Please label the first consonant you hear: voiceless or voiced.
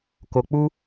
voiceless